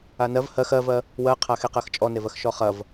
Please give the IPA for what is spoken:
a n ɜ v h ɜ x ɜ v ɜ | w ɜ qʰ a x e q ɜ x t͡ʃʼ ɔ n e v ɜ x ʃ ɔ χ ɐ v

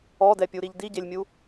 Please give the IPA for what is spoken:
ɔ d ɛ pʲ u ɾ i ʎ d i ɟ e lʲ mʲ u

